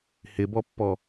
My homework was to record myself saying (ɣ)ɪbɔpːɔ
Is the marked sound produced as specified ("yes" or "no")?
no